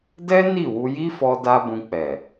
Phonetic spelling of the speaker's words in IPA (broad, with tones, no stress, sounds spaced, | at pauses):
d ɛ˦ n i˦˨ w u˧ j i˦ f ɔ˧ d a˦ b ũ˧ k͡p ɛ˨